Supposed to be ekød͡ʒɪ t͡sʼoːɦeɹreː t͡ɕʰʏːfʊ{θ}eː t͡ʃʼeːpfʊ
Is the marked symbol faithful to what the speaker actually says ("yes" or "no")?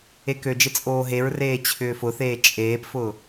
yes